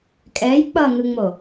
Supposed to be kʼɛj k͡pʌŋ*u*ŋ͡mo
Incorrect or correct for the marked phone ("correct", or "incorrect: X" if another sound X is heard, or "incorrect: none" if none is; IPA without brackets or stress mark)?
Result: incorrect: ɯ